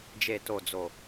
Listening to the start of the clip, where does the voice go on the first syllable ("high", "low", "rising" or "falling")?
low